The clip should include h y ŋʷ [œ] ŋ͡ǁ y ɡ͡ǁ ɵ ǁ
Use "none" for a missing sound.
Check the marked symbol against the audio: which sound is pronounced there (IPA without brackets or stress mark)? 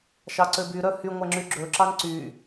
æ